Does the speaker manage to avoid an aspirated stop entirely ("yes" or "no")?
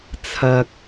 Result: no